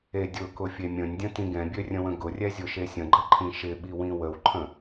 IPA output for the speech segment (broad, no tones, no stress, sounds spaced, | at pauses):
e dʲ ʊ k ʊ fʲ e mʲ ə̃ nʲ dʲ ə̃ t ĩ ɡ ɛ̃ bʲ ø rʲ ə̃ w ə̃ ɡ ʊ rʲ ɛ zʲ ʊ ʃ e sʲ ə̃ ɡ͡ǃ ʌ ǃʰ ĩ ʃ ɪ ɓ i w ĩ w ə w ǃʰ ə̃